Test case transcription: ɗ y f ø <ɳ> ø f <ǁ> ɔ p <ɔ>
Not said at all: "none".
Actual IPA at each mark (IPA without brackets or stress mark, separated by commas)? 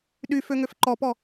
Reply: ŋ, ǃ, ɔ